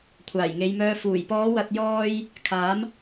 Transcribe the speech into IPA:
kʷʰaː˨˩jŋe˨˧jmœː˧ fuː˨˩jpɔː˨˧wɐ˨t̚ jɔː˧j | kʰaː˨˥m

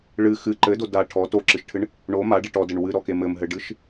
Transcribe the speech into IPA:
ɭɨ xɨ ǃɘdo da ʈʰɔ toǁɨʃʈʰɨɳ | ɳo maɖeʈ ɔdɘɳ wɨɾɔke mɘmɦɘɖɨʃ

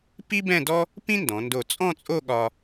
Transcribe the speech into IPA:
pi˥bɛ̃˥˧dɔ˥ | pĩ˥ndɔ̃˩˧ndo˧˩ t͡sʼɔ̃˥˧t͡sʼo˥˧ɠɒ˧

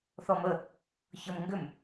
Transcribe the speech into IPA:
θɔmə | çɤmŋɡʏm

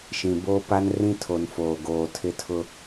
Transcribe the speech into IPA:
ʃĩ˨ bo˦pa˦nrĩ˦ tʰo˨nfoː˨ ɡoː˨tʰɪ˦tʰʊ˦

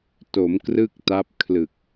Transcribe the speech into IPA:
to˩˦m krɯ˥˩k̚ta˦˥p̚kʰlɯ˨˩k̚

